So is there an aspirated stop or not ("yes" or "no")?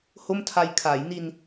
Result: yes